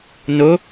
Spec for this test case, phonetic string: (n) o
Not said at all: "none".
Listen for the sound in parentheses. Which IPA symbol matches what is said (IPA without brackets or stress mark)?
n